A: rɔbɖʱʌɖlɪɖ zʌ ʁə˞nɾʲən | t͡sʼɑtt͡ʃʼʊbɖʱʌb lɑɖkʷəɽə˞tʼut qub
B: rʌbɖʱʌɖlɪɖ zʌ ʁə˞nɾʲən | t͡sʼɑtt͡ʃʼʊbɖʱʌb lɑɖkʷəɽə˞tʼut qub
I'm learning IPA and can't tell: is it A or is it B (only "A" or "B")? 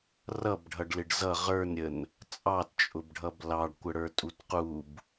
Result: B